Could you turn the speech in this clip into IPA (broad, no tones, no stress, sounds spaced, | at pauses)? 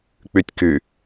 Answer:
k͡p y tʲ k y